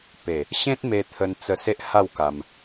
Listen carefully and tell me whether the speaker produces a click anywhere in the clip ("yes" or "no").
no